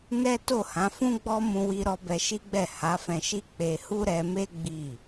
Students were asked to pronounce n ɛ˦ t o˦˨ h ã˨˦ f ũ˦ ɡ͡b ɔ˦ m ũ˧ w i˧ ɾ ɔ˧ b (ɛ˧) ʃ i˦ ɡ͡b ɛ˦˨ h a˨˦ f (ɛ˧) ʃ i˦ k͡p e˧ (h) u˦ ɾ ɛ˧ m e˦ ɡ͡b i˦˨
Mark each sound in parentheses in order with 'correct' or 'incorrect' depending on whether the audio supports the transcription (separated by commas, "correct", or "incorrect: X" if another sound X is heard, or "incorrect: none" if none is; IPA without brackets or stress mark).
correct, incorrect: ɛ̃˧, correct